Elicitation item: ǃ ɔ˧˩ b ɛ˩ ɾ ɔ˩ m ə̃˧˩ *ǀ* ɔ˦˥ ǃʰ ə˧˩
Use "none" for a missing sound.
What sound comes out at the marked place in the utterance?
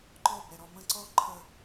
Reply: ǀ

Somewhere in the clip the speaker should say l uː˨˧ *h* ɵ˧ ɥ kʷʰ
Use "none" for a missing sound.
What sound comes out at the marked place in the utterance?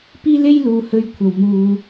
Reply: h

